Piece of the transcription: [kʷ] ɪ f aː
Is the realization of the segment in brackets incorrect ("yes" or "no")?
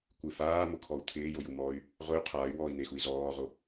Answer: no